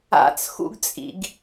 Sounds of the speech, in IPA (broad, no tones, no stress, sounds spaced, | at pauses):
a̰ t͡s x ṵ ɡ t͡sʼ ḭ ɡ